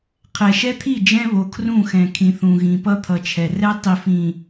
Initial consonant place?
uvular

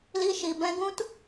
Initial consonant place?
alveolar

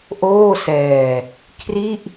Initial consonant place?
glottal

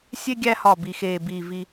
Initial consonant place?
alveolar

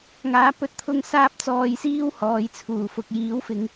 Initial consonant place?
velar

